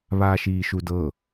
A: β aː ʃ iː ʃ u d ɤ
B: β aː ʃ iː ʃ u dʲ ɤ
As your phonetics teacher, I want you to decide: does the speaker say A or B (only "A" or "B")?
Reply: A